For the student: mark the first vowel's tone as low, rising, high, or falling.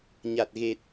low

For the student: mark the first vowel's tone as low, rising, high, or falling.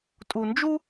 low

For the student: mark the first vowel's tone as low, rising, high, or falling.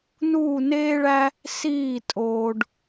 falling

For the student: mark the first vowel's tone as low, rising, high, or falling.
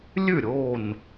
falling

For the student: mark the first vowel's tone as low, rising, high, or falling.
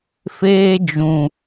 high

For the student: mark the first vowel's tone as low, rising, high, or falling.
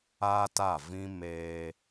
high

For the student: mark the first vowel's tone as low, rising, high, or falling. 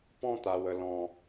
high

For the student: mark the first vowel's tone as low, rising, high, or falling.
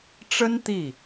high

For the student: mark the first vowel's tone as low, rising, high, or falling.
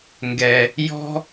low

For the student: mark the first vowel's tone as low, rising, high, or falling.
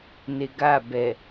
low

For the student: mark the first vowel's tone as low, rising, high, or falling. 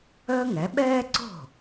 high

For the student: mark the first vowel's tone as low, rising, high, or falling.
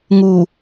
low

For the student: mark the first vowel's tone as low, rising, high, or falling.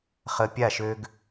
low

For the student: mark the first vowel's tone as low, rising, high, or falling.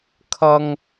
high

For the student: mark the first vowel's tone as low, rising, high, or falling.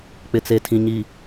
low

